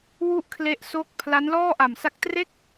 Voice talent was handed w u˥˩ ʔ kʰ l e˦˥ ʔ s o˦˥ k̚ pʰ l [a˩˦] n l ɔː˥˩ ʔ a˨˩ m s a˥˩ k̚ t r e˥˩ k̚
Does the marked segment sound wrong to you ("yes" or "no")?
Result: yes